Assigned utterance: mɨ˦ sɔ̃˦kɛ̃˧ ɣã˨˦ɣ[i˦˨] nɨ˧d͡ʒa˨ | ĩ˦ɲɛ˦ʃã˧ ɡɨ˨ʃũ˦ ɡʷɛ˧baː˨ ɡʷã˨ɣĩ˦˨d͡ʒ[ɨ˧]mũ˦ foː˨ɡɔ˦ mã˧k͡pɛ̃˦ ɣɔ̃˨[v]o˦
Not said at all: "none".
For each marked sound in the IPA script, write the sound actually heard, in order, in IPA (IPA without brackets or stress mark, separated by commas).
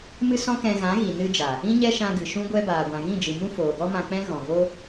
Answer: i˨, ɨ˨, v